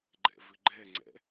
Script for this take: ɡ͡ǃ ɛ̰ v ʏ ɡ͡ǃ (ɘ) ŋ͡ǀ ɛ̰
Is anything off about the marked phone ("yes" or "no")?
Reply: yes